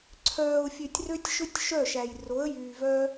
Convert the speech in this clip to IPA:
ǀʰ œː˨ ʊ̯ fʲ ø˨ tʲ r ø˦ tʲ ʃ ɵ˦ tʲ ʃ œ˦˨ ʃ æ˨ j r o˨˦ ə̯ j yː˨ v œ˦

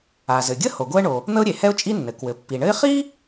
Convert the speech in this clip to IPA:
a˩ z ɘ˩ ɡʲ ə˥ h o˩ ɡ o˥ ə̯ ɳ o˩ | n̪ ə˥ ʊ̯ ɾʲ e˩ h ɛ˥ ʊ̯ t͡ʃʼ i˥ nː ɘ˩ k w ɘ˩ pː i˩ ɳ ɘ˥ ɪ̯ χ i˥

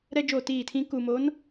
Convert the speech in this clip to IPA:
ɾ ɛ˦ d͡ʒ o˦˨ t iː˦˨ tʰ ĩ˦ k u˨ m o˨˦ n

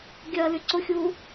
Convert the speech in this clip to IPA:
ɡʲ ɐː l y ǀ ʊ xʲ uː

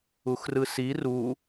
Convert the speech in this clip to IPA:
u x r ɯ s i r u

